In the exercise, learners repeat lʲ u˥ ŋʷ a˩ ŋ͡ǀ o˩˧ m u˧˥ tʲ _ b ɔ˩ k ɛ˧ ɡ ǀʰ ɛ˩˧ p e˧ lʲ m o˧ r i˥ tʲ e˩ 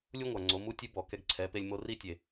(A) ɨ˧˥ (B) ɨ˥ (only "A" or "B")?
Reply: A